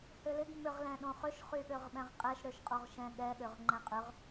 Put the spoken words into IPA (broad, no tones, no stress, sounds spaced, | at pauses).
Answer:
h ø l ɪ ɡ m ʏ ʁ l ɛ̃ ɗ õ χ ʏ ʃ χ y ɠ ø ʁ ɓ ɛ̃ ʁ qʼ ɛ ʃ ɾ ø ʃ qʼ o ʁ ʃ ɛ̃ ɠ ɛ ɠ ø ʁ ŋ͡ǃ ɛ̃ qʼ ʏ ʁ